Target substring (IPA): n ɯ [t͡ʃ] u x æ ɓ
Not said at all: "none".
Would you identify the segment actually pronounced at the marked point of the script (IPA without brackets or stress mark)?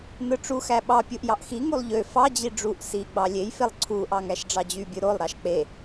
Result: ʈ͡ʂ